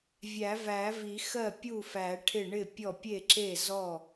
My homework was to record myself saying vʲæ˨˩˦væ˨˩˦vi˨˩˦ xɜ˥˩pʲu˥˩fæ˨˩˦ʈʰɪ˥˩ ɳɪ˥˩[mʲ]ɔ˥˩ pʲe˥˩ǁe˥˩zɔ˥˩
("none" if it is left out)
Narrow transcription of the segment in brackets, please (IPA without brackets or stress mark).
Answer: pʲ